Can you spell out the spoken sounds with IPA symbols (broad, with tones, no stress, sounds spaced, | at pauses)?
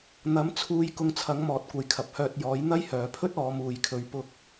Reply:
n̪ ɐ˨˥ m t͡sʰ uː˧ j k ʊ˧ ŋ t͡sʰ ɐ˨˥ ŋ m ɔː˨˥ t̚ kʷ ɐ˨ j kʰ ɐ˨ p̚ h œː˧ t̚ j ɔː˨˥ j n̪ ɐ˥ j h œː˨ pʰ ɵ˥ t̚ ɔː˨˧ m uː˨ j kʰ ɵ˨˧ ɥ p ʊ˥ k̚